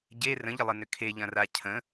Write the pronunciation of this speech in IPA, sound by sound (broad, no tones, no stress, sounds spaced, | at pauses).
ɟ e r ə̃ ʎ ə lˠ ə n ʏ kʰ e ʎ ɐ̃ r a cʰ ə̃